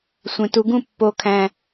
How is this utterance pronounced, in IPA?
sʷẽ˨˩ tu˨˦ɡũ˥˩ pːo˨˩kʰæ̃˨˩

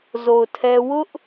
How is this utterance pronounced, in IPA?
zo˨ʊ̯tʰɛ˦ wʊ˦ʔ

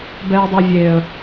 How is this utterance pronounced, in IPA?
bɛːdˤevʲeːə̯

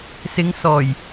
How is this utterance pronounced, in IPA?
sɪ˨˧ŋ sɔː˨˩j

